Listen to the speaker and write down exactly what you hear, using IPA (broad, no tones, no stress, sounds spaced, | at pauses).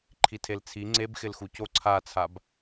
ǃʰ i tʰ e l t͡sʰ i ŋ͡ǀ e b x ɪ l x u c o ǀʰ a t͡sʰ a b